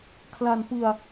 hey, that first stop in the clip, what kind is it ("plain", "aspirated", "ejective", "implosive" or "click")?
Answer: aspirated